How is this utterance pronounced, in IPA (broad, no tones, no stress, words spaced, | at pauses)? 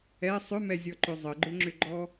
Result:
ɛ sˤʏmɛzʲɔǃʏ zˤəɡ͡ǃʏŋ͡ǁʏɡ͡ǃɔ